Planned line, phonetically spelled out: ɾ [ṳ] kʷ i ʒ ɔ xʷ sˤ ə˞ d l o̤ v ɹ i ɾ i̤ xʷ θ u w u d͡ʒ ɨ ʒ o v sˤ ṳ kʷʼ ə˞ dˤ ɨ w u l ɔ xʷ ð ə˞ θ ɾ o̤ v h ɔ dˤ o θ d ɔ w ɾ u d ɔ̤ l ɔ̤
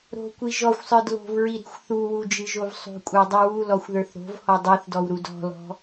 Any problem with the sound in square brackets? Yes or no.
yes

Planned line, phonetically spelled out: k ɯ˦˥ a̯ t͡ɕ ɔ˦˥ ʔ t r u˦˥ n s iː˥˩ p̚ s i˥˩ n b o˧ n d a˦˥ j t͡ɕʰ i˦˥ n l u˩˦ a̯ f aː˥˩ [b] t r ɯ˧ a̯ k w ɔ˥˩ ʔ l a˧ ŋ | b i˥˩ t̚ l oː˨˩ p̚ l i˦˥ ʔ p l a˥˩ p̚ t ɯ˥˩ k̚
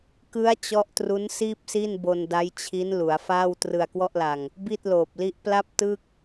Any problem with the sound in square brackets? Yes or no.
yes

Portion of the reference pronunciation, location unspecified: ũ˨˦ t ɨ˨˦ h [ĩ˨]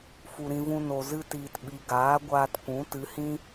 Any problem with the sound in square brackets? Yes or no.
yes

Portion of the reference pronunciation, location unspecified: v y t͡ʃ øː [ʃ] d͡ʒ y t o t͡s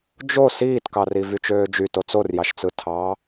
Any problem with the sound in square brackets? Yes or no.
yes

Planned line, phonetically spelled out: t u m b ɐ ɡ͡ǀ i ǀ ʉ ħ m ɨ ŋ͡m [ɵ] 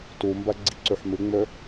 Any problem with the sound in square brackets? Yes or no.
no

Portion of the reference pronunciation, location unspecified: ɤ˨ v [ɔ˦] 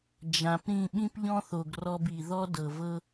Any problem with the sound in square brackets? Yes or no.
yes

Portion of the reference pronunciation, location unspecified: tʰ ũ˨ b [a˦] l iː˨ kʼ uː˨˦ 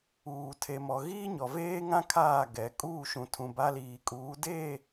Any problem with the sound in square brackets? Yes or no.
no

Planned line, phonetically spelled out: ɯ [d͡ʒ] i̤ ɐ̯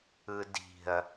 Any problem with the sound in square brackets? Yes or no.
yes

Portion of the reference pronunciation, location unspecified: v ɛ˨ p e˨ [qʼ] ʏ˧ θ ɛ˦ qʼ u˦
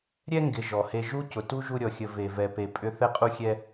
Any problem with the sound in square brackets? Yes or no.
yes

